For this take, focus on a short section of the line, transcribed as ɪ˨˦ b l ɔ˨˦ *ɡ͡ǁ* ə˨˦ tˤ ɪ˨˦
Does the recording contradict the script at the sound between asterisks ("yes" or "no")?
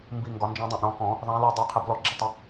no